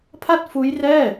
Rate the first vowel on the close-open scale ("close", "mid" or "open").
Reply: open